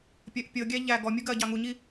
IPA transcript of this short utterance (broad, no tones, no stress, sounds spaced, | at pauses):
pʲ ɜ ʔ pʲ ɤ ɡʲ æ ʎ æ ɡ ɔ mʲ u ɡ ɜ ɟ ɑ ŋ u ɲ i